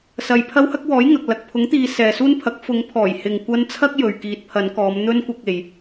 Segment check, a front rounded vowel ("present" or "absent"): absent